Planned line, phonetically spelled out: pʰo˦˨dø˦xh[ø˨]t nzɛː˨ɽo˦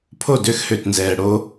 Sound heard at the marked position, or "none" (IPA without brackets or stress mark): ø˨